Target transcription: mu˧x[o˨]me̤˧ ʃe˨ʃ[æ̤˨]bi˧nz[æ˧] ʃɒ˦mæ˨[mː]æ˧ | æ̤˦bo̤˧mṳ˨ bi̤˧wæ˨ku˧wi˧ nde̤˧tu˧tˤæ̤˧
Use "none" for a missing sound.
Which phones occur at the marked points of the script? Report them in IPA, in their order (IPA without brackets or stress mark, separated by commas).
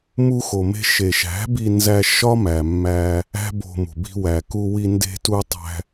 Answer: o˨, æ̤˨˦, æ˧, mː